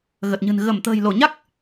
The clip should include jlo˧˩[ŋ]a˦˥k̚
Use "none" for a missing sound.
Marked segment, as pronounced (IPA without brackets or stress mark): ɲ